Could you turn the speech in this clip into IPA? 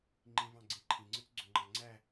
ŋ͡ǃĩvɑ̃ɡ͡ǀĩ ǃʰĩŋ͡ǀɯt͡sɡ͡ǀøŋ͡ǃɑ ŋ͡ǀæ

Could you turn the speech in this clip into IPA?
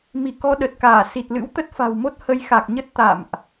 mi˧˩kɔ˧ ɗə˨˩t̚kaː˧˩ si˨˩t̚lɨ̰˧˥w t̪ə˦˥t̚fa̤˨˩wmo˦˥t̚ hə˨˦jxa˨˩k̚ɲə˦˥t̚ t̪a̰˧˨mʔ

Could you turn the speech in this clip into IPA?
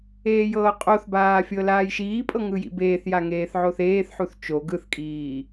eːjɤːqʼoθbaː fʲɤlaːjʃiːpʼɤ ŋɯjḭbeːθja ŋeːθʕoθeːθħuθ t͡ʃo ɡɯθkʼiː

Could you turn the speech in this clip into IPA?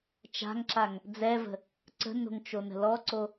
t͡ʃa̤ŋǁaŋ | d͡zɛvə̤ | ǀə̤no̤ŋt͡ʃonə̤ lɔǀo

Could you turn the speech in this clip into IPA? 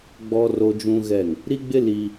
ɡ͡bɔ˦ ro˦d͡ʒũ˦ɣɛ˦˨ŋ | ɾi˦ɡ͡bɪ˦ li˦

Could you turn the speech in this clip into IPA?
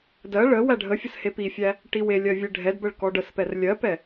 dɜ ɭə wæɖʱəfʲəs hepifʲæ | ʈiwelʲɜ vʲeɖʱɛdbəɭ kɔɖəspɛr lʲɜpɛ

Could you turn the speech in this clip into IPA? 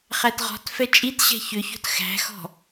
χætʁɔ̤tfɛ t͡ʃʼitɕɛ̤ çʏço̤t xæ̤xɔ̤

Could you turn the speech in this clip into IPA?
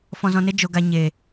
fɔ̃˧zɔ̃˧ne˦ d͡ʒo˧ ɡa˧ ɲe˨

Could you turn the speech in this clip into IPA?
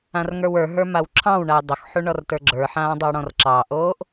ãrŋə˞wə˞ɦə˞ mawǁʰɑ̃wɳaj dˤʊxħu ɳɔrtə˞ɡ͡ǁə˞ħãː dˤowɽɔ̃rǁɑʔoːʔ

